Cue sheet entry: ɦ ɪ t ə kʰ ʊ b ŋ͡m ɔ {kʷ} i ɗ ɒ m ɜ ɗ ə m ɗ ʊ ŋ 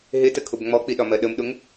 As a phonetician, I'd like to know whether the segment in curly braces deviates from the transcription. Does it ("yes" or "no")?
yes